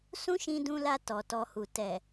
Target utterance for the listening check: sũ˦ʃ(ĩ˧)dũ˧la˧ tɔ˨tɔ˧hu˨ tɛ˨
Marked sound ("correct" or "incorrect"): correct